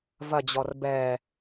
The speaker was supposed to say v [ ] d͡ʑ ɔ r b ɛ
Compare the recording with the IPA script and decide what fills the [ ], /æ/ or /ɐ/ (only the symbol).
ɐ